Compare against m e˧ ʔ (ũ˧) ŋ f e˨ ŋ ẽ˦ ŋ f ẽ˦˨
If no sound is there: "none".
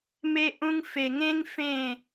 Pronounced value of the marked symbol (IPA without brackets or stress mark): ũ˧